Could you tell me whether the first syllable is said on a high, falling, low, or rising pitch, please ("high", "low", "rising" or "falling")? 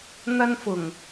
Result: high